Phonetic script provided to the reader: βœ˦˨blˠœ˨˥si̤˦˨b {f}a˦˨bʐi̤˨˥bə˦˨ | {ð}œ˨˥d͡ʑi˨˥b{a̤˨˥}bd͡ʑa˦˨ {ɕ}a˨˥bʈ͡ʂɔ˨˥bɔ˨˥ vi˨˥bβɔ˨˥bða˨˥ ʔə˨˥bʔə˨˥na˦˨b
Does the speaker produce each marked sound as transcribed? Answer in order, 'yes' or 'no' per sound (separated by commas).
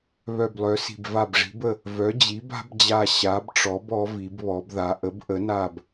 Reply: no, no, yes, yes